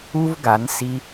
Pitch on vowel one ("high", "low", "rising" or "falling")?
high